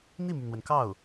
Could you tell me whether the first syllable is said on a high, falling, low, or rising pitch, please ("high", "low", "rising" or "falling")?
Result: falling